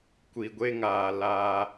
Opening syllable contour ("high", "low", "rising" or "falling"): low